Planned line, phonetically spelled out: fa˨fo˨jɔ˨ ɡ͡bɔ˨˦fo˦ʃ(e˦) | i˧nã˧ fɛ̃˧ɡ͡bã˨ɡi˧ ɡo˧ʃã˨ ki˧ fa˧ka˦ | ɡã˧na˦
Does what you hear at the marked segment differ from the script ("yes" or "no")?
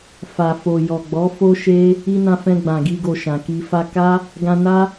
no